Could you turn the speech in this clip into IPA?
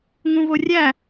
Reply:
ŋ ũ v o rʲ æ

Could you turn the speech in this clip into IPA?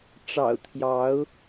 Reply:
ʈ͡ʂ ɑ̰˨˩ ʊ̯ t̪ʰ j ɑ˨˦ ʊ̯

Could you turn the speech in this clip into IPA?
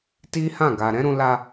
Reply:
t i˦ h ã˦˨ ɡ a˨ ɾ ɛ̃˨˦ ɾ ũ˧ l a˧

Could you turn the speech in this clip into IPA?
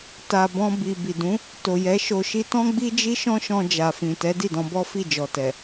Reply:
t a˨ b ɔ̃˧ b i˨ b i˨ d ũ˨˦ | t o˨ j ɛ˨˦ ʃ o˧ ʃ i˦ t ɔ̃˦ ɡ͡b i˦ d͡ʒ i˦ ʃ ɔ̃˦ ʃ ɔ̃˧ d͡ʒ a˨ f ĩ˨ t ɛ˨˦ d i˦˨ d ɔ̃˧ b ɔ˦ f i˦˨ d͡ʒ ɔ˨ t ɛ˨

